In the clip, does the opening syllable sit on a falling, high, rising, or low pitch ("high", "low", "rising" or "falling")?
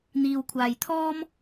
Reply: low